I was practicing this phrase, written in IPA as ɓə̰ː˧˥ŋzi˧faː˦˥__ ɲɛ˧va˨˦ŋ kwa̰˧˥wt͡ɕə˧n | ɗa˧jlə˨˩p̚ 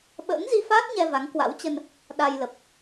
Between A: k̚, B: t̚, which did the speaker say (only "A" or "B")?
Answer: B